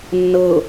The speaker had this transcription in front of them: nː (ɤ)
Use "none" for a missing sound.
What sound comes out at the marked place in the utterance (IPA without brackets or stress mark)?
ɤ